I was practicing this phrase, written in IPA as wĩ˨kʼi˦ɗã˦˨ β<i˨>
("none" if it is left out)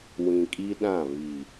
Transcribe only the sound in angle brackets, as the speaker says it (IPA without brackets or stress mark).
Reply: i˨